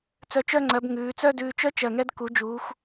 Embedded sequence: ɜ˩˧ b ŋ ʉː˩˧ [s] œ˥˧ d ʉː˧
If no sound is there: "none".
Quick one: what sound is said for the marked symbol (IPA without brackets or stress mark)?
t͡s